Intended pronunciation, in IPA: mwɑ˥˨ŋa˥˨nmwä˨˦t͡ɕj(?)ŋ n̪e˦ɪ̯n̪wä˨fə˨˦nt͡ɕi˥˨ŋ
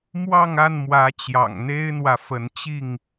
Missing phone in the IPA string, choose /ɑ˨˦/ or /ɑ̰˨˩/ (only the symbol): ɑ̰˨˩